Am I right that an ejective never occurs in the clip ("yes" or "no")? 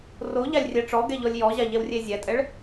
no